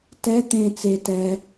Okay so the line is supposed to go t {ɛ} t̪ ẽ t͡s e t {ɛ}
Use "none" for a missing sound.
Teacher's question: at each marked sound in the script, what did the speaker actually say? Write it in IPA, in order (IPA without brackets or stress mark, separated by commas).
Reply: ɛ, ɛ